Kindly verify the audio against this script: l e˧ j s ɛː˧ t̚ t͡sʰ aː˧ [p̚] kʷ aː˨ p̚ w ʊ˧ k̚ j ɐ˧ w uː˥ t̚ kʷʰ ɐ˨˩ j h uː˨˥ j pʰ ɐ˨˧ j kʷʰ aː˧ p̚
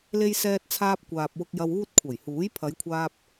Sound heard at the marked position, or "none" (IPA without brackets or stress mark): p̚